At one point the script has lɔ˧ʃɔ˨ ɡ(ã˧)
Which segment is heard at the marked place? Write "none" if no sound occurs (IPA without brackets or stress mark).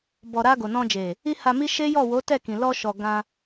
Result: ã˧